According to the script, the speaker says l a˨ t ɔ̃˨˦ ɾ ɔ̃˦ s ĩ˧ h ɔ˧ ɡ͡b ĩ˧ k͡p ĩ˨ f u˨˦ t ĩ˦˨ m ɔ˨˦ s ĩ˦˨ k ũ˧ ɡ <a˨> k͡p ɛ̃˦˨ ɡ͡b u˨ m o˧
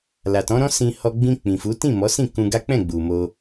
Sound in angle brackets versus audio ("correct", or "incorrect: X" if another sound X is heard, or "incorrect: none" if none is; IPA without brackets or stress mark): incorrect: a˦